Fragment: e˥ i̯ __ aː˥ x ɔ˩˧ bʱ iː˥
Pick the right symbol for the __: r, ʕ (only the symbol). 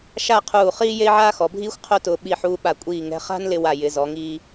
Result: ʕ